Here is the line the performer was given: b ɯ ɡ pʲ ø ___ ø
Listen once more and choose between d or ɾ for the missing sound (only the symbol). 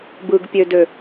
d